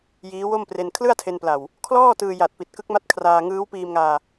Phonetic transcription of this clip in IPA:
j iː˦˥ w o˥˩ m p r e˧ n kʰ l ɯ˥˩ a̯ tʰ e˧ n p l a˨˩ w | kʰ l ɔː˥˩ t ɯː˧ j a˨˩ t̚ p i˨˩ t̚ k ɯ˦˥ k̚ m a˦˥ t̚ kʰ r aː˧ ŋ ɯː˦˥ w p iː˧ m ŋ aː˧

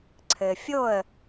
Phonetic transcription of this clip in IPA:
ǀʰ ɘ˩ fʲ o˥˩ ə̯

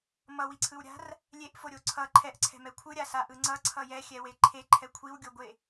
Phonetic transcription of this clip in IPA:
m ʌ w i ǀʰ ɯ w ɾʲ a̤ r | lʲ e ʔ f o ɾʲ o ǀʰ ʌ ǃʰ ɛ ʔ ǀʰ ɛ̤ m ɛ kʷʰ ɯ ɾʲ a s a ʔ ɯ ŋ͡ǀ ʌ ǀʰ ʌ j ɛ xʲ ɛ w e ǃʰ e ǃʰ ɛ kʷʰ i w ɡʲ o ɡʷ e

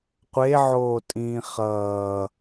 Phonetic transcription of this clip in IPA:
qʷ e ʕ oː tʼ ĩː χ ʌː

